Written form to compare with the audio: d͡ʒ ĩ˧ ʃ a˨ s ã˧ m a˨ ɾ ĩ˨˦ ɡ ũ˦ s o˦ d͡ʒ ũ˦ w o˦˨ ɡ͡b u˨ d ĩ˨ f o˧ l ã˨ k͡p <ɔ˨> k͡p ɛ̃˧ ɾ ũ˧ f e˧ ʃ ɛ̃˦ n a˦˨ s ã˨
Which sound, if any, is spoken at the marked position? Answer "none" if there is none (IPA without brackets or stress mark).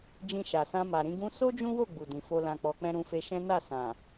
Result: ɔ˨